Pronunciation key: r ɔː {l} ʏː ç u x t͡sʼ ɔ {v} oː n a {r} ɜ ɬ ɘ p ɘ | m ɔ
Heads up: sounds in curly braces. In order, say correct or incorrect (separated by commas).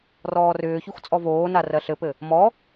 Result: incorrect, correct, correct